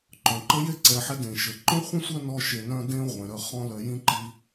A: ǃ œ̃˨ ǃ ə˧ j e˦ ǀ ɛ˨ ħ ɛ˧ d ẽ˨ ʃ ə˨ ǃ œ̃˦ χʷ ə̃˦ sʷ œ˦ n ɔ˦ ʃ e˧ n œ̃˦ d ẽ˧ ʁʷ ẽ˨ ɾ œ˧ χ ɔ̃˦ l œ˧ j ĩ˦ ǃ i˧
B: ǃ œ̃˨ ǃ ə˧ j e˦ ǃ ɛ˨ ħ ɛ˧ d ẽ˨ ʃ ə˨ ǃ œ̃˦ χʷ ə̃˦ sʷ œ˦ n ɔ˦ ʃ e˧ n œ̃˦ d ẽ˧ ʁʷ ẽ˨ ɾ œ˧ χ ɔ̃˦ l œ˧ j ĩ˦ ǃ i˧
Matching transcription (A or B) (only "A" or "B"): A